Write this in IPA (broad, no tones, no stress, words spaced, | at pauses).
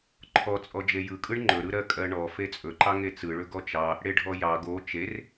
ǃʰɔt͡sʼɔ d͡ʒejɯkʼɯɳ ŋ͡ǃɵɾɯ ɾɜkʼɜɳɔ fet͡sʼɵǃɑ ŋet͡sɯɭɵ ɡɔt͡ʃɑ | ɽeɖʱɔjɑ ɡo t͡ʃer